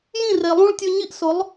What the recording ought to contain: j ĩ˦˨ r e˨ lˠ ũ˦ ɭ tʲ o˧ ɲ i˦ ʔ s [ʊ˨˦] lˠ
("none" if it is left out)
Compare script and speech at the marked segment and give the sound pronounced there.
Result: ʊ˨˦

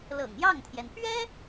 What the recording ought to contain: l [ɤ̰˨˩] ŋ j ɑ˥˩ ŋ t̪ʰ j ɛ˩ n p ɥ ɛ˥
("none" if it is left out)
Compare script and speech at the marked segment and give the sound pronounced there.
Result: ɤ̰˨˩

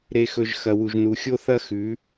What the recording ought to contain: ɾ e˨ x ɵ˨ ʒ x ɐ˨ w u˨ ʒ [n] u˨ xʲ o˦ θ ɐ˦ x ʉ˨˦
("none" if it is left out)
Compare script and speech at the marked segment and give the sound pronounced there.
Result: n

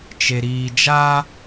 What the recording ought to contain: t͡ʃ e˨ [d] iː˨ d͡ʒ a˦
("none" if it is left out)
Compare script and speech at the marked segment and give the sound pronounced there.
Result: ɾ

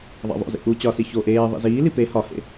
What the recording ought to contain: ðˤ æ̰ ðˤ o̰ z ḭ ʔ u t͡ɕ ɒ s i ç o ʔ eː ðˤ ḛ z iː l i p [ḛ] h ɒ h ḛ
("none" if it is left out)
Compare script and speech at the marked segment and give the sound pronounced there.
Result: e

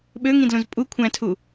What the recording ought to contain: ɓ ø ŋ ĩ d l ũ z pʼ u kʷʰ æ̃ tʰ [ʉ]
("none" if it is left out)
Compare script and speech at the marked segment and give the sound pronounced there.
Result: u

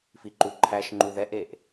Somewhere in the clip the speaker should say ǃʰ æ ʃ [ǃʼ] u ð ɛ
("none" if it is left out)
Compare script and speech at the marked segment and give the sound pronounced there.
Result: ŋ͡ǃ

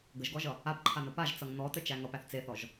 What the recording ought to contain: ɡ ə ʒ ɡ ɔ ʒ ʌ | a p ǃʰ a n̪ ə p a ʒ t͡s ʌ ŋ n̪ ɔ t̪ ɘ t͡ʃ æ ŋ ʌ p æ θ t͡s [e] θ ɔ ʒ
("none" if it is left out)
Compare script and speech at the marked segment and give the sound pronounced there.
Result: e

